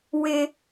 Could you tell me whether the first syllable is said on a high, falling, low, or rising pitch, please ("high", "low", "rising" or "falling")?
high